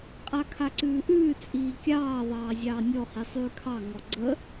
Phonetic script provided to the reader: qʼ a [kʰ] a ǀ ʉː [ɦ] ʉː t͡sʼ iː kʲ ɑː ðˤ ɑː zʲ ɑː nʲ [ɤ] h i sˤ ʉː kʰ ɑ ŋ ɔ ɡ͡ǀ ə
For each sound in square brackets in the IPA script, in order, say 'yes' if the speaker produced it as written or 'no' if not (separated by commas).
yes, no, no